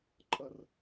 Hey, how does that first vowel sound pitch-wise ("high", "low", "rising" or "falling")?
low